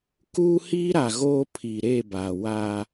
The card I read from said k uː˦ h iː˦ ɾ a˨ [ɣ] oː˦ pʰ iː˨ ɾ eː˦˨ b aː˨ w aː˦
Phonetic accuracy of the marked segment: correct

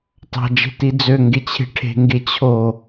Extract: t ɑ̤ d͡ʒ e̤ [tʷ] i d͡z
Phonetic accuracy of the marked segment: incorrect: t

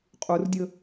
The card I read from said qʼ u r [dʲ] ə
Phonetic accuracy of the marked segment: correct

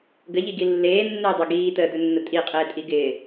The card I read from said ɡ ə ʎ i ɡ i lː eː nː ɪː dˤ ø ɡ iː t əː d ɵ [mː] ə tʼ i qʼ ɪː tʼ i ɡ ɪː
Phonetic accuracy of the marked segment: incorrect: nː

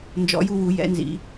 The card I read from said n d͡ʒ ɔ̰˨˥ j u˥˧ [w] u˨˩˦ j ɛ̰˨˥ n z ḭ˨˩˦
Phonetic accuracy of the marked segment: correct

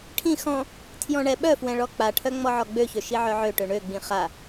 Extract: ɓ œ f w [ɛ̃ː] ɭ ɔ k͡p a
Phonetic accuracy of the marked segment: incorrect: ɛ̃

